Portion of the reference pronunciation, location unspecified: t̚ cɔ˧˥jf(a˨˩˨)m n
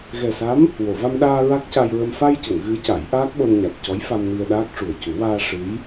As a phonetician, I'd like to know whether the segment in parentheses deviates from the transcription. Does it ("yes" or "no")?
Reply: yes